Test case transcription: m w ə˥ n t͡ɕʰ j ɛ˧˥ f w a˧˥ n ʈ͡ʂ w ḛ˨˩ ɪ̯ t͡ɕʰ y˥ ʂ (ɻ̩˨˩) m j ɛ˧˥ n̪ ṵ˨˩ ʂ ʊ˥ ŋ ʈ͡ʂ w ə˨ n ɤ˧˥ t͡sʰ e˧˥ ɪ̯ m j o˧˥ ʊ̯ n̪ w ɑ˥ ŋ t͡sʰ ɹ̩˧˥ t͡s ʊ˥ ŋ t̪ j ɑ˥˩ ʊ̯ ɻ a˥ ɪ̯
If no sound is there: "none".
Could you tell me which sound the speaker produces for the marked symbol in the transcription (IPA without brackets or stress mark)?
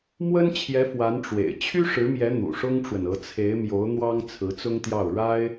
ɻ̩˧˥